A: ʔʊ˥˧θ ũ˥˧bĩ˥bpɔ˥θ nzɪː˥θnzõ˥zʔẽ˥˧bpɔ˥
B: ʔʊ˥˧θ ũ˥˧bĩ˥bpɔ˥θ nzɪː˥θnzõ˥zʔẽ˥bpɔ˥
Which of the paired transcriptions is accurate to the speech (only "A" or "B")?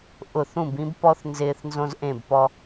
A